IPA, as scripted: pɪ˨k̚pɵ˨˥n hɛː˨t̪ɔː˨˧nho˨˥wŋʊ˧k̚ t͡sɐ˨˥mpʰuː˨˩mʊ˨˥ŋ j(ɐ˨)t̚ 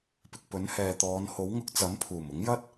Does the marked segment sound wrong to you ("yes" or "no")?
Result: yes